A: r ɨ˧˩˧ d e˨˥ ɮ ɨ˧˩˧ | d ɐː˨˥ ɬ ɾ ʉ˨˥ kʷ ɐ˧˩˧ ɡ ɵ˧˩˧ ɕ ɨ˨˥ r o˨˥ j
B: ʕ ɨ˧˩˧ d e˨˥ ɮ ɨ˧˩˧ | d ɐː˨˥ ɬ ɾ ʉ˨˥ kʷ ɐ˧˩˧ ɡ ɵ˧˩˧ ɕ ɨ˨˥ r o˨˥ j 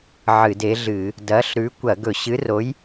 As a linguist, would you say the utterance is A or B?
B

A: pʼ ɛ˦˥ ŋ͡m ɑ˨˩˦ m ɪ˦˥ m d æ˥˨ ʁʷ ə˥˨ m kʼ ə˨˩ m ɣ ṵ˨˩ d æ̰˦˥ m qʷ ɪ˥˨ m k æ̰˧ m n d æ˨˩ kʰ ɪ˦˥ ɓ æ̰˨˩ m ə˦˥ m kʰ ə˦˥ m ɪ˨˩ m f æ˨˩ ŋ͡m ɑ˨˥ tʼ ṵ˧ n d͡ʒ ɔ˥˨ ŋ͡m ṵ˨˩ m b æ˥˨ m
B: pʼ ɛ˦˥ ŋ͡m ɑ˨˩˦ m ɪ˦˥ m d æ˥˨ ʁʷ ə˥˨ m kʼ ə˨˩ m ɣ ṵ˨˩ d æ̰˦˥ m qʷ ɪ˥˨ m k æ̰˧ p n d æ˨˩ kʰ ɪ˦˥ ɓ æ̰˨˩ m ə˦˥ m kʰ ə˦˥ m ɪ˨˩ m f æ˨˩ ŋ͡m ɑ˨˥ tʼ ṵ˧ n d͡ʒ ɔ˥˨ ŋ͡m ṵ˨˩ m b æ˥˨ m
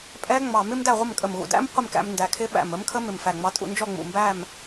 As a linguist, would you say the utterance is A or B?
A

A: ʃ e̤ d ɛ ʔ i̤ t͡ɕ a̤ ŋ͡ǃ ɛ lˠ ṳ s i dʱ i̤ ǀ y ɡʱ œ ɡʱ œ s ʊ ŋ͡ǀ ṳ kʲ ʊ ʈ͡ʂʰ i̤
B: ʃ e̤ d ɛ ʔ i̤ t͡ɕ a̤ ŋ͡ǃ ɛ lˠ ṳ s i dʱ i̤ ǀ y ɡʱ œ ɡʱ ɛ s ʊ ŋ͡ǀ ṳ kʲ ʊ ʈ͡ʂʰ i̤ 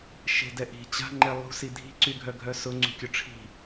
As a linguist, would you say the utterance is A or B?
A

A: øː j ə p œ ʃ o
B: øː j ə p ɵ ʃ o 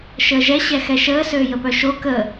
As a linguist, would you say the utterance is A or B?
A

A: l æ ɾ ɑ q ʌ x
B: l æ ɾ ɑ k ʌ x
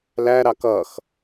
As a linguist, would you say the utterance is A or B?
B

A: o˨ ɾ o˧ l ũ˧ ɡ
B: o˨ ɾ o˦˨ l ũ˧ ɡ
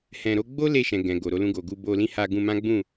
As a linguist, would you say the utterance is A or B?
A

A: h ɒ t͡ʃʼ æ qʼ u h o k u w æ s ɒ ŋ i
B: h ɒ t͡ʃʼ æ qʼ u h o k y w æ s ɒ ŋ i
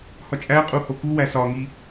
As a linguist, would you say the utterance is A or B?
A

